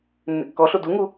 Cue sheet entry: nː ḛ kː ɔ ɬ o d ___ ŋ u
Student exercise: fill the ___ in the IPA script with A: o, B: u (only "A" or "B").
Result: B